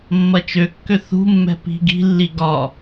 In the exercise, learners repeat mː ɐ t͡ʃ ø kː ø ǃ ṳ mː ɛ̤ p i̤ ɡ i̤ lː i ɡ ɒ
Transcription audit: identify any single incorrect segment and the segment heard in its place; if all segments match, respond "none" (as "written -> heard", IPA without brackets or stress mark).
ǃ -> θ